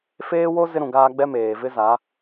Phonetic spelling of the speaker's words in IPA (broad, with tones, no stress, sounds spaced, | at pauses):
f eː˦ w o˦ z ɪ˦ ɾ ũ˨ ɡ aː˦ ɡ͡b ɛ˦ m eː˨ v ɪ˦ z a˨˦